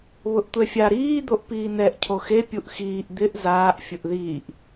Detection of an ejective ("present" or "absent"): absent